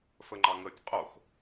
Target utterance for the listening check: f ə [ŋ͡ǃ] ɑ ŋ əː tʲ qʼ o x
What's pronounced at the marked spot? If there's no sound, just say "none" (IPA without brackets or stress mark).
ŋ͡ǃ